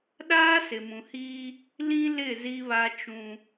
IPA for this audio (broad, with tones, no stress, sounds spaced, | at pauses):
ɗ aː˦ s ɪ˨ m ũ˨ h iː˦ | l ĩ˦ l ɪ˦˨ z i˦ β a˦ t͡ʃ ũ˦